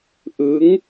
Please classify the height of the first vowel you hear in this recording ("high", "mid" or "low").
high